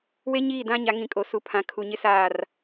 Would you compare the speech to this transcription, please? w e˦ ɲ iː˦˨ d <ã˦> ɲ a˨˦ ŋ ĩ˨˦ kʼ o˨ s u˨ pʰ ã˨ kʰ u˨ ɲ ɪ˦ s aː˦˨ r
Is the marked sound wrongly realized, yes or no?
no